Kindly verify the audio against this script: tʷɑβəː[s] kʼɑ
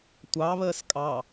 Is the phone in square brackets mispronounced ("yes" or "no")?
no